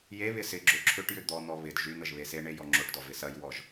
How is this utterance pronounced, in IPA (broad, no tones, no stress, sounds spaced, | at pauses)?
j e β ɪ s ɪ ɡ͡ǁ ø ǁʰ ʏ ʈ j ʏ d̪ ɔ n̪ ɔ β ɪ d ʒ y n̪ ə ʒ β e s e ɳ e j ɔ ŋ͡ǁ o ʈ d ɔ v ɪ s ɐ j w ɔ ʒ